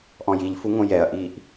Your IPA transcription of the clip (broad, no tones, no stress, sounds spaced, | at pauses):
ʔ ɔ̃ j i ʎ f u ŋ õ j ɛ ɐ̯ ʔ iː ʔ